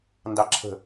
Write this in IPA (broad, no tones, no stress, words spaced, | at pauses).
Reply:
ndɑǁʰə̤